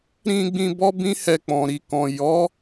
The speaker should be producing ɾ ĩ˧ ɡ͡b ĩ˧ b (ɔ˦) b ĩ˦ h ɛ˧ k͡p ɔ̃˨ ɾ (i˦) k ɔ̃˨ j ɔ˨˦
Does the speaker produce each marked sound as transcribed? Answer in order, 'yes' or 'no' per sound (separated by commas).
yes, no